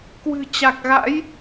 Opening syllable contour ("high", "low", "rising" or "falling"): low